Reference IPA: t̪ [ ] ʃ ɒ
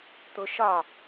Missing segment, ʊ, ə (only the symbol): ʊ